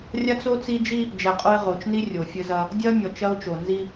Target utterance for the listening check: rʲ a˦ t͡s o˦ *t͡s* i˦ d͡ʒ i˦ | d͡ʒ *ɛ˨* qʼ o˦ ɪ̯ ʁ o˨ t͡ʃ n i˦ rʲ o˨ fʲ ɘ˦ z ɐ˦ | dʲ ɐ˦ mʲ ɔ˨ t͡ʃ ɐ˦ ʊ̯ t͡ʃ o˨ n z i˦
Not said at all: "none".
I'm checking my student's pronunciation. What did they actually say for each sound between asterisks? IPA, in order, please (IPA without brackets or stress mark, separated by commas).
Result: t͡s, ɛ˨